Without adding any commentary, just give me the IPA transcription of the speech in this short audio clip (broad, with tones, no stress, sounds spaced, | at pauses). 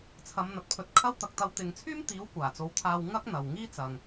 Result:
t͡sʰ ɐ˨˧ m n̪ ɐ˨ t̚ pʰ ɵ˨ t̚ kʰ ɐ˥ w t̪ ɐ˨ k̚ t̪ ɐ˧ w t̪ ɪ˨ ŋ t͡sʰ yː˥ m t̪ iː˨˥ w kʷ aː˨˩ t͡s o˨˥ w t̪ʰ aː˧ w ŋ ɐ˥ k̚ n̪ ɐ˨ w ŋ iː˥ t͡s ɐ˨ ŋ